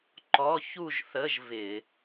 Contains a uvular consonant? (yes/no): no